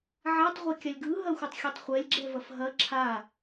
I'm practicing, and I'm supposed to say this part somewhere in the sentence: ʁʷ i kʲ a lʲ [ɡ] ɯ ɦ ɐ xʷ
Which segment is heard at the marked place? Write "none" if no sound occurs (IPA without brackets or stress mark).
ɡ